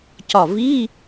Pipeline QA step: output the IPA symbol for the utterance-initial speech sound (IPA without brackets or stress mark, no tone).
c